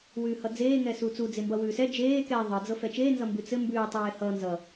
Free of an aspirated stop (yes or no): yes